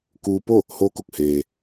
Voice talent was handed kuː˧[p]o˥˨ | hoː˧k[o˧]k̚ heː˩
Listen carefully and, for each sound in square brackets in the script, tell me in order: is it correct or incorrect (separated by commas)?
correct, incorrect